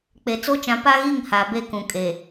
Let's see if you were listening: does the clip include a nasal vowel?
yes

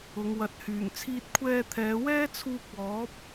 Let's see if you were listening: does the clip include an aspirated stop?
yes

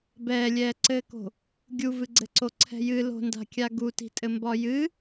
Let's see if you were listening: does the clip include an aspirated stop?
yes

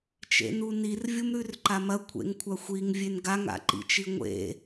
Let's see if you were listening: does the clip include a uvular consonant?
no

